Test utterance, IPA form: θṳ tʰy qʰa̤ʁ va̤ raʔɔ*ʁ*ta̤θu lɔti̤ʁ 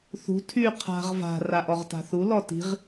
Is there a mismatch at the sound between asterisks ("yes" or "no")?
no